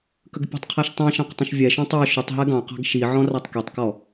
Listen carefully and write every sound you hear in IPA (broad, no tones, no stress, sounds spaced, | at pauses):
k ə ɡ pʲ ə̤ tˤ qʰ æ ʃ tˤ ĩ ʃ ɑ̃ q tˤ ə̃ ʃ vʲ ɛ ʃ ɔ̃ tˤ ə˞ ʃ ʊ tˤ ɦ ɛ ɡ ɑ̃ q ɑ̤ ɡ ʃ i ʕ ɔ̃ r ɑ tˤ k i tˤ k ɔ